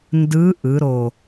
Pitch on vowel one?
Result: rising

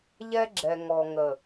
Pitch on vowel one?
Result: high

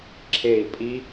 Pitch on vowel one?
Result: falling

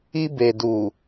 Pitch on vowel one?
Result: high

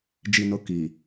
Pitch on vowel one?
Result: low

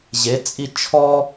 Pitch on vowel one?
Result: rising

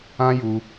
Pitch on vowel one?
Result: high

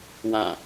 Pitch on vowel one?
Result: falling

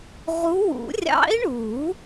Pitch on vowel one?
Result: rising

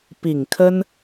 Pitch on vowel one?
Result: low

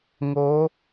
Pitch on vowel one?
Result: rising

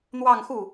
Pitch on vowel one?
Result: falling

